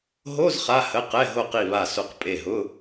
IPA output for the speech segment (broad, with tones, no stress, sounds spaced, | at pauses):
ɦ o˧˥˧ z χ a˩˧˩ h ə˩˧˩ q ɛ˩˧˩ ɦ o˧˩ q i˧˩ β a˧˩ s o˧˩ q pʼ e˧˩ ɦ ʊ˧˥˧